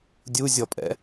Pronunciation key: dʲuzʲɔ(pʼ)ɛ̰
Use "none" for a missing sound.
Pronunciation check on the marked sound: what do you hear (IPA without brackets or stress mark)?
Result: pʼ